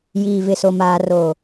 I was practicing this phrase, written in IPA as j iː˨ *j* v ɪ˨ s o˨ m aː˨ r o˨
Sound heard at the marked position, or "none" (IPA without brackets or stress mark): none